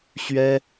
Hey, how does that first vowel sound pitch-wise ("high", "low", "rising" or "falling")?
high